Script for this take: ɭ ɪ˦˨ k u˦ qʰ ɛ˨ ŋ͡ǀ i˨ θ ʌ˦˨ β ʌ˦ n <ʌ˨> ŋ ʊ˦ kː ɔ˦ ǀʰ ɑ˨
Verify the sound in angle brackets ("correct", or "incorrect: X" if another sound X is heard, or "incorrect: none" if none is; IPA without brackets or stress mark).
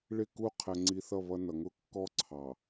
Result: correct